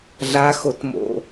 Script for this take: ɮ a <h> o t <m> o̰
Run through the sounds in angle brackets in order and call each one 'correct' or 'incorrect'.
incorrect, correct

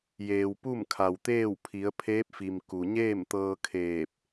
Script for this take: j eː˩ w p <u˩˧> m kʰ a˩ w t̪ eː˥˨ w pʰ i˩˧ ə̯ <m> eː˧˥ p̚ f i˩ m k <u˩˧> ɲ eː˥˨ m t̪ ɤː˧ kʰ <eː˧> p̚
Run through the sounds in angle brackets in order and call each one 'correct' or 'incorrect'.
incorrect, incorrect, incorrect, incorrect

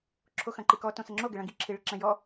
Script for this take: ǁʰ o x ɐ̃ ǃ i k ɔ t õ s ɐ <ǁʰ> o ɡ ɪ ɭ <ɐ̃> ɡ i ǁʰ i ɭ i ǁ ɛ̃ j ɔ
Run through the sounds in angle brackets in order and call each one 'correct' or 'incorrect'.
incorrect, correct

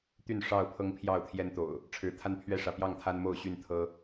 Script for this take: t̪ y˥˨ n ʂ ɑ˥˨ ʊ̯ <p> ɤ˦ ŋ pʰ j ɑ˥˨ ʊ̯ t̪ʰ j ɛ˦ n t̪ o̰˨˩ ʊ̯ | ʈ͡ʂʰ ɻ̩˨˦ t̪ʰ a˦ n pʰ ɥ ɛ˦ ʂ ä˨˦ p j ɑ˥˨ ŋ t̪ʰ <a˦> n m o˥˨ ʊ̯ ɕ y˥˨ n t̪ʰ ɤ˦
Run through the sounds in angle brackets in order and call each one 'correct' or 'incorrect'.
incorrect, correct

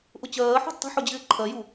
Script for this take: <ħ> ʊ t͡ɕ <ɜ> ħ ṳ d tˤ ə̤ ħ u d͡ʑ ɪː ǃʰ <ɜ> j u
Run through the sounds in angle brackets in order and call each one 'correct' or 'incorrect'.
incorrect, incorrect, correct

